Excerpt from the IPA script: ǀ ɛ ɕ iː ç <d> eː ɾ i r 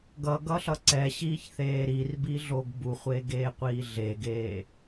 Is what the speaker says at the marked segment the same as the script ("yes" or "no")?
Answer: no